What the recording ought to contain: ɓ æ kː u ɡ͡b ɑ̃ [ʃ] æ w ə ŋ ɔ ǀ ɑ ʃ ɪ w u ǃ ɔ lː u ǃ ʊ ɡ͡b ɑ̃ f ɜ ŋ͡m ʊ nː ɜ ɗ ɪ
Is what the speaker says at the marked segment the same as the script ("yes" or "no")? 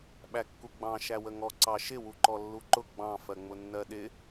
yes